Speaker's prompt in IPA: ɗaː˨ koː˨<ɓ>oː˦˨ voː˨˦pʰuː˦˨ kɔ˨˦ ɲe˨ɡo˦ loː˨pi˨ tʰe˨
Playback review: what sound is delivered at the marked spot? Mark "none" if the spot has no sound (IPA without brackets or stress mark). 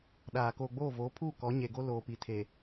ɡ͡b